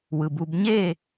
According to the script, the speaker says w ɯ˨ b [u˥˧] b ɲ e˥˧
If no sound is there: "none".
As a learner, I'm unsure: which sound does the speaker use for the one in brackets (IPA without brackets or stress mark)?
u˥˧